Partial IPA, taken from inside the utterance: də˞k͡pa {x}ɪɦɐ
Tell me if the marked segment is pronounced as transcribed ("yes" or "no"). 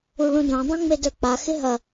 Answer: yes